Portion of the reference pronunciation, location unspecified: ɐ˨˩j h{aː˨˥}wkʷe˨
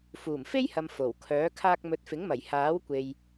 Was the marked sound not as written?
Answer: no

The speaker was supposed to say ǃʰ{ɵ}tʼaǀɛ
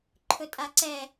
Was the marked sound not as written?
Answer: no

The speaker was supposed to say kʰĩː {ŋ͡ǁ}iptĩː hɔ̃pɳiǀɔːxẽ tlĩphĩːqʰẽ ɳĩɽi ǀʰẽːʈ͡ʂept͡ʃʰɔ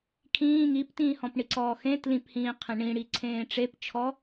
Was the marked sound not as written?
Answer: yes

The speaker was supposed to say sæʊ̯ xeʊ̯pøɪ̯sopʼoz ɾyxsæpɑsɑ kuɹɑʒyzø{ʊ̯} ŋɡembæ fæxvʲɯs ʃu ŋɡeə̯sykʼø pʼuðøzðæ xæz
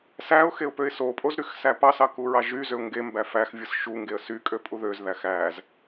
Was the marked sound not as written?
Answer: no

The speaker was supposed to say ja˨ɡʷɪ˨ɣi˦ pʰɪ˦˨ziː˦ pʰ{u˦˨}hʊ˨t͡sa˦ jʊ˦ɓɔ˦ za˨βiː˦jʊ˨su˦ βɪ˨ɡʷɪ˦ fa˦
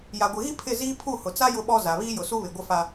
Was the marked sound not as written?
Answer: no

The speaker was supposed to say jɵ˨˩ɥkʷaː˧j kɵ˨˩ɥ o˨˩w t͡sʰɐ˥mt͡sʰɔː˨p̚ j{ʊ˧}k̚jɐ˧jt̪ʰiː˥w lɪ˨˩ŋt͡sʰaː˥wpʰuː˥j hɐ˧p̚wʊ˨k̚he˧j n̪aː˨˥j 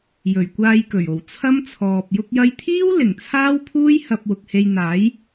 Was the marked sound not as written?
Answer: no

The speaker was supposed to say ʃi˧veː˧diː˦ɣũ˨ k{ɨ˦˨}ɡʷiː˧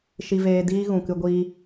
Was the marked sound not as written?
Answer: yes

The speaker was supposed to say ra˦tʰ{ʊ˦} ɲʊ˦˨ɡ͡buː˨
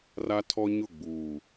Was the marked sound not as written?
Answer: yes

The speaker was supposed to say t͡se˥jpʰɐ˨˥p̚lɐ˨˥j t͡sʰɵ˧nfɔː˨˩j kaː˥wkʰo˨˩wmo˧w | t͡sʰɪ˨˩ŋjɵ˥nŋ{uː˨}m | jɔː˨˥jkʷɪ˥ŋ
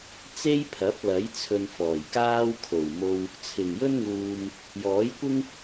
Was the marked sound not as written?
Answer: no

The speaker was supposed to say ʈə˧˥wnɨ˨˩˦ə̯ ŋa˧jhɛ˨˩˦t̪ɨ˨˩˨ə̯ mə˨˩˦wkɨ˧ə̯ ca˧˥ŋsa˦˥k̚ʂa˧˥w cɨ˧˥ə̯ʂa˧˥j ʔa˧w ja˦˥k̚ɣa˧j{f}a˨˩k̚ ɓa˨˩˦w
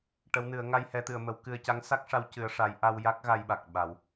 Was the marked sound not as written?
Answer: yes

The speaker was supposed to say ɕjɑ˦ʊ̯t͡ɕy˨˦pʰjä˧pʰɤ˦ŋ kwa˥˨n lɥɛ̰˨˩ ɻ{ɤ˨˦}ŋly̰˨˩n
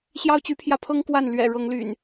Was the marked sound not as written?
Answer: no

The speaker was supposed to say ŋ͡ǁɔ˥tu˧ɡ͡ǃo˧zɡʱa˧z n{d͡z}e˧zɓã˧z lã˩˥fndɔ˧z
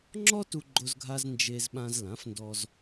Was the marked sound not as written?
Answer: yes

